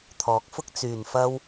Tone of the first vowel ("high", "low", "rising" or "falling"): rising